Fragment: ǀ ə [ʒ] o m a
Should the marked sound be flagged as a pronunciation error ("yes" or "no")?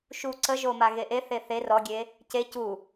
no